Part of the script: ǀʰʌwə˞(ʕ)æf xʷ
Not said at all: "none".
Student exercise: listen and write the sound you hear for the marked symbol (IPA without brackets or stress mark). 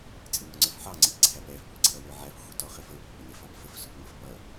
ʕ